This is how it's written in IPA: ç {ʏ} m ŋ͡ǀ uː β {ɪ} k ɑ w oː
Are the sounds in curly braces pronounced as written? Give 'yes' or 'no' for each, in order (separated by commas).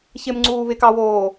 no, yes